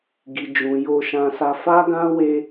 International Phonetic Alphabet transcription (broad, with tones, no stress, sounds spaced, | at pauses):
ɡ i˨ d͡ʒ ũ˨ j o˧ ʃ ã˧ s a˧ f a˦ ɡ ã˦ w e˧